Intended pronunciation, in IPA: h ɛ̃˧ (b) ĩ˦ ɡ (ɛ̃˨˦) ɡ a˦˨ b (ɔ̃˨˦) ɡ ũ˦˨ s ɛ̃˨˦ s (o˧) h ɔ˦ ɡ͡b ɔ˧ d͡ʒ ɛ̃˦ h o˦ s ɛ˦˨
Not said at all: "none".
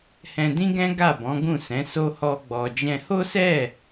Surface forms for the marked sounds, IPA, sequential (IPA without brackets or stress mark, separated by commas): d, ɛ̃˦, ɔ̃˨˦, o˦